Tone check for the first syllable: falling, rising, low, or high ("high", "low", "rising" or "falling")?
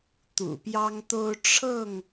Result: low